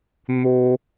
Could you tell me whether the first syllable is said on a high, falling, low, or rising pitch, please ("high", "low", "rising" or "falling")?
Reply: high